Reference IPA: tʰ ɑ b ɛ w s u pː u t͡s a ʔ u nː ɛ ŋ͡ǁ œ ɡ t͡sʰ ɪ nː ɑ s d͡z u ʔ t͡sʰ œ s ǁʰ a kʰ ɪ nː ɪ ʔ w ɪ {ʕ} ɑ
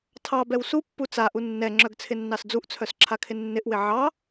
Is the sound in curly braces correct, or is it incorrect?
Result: correct